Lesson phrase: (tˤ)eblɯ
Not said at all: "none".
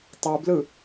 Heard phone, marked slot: tˤ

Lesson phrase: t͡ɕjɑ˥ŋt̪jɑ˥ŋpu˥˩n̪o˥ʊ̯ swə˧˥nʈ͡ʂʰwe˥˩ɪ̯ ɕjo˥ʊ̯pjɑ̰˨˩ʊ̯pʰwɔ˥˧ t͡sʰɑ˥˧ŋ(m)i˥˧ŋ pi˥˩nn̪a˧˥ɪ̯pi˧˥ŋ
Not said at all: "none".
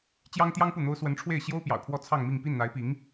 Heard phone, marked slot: m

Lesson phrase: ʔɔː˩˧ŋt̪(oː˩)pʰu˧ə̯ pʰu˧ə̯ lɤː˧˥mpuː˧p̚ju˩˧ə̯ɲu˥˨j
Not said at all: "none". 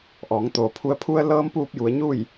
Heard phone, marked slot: oː˩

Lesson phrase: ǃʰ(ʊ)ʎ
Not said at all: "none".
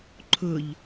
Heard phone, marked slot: ʊ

